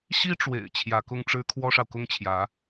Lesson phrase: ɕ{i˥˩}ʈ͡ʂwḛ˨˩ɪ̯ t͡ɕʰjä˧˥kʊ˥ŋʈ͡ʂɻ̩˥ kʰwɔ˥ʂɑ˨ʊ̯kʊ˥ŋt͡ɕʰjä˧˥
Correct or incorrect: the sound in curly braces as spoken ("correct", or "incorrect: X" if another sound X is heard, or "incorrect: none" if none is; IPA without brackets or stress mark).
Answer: incorrect: i˥